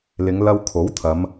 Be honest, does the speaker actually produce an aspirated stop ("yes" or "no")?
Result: yes